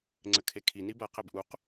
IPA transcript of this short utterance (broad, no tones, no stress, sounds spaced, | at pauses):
ŋ͡ǀ ɘ kʰ e kʰ i n i b ɐ q ɛ b ʔ u q